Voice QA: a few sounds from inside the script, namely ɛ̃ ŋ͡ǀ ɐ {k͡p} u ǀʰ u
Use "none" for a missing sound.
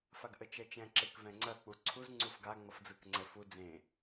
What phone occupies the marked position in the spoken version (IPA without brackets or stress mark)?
k͡p